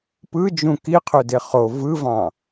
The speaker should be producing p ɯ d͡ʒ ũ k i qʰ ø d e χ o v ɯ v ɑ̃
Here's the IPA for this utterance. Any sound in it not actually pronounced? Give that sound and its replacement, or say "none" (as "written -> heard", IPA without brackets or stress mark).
none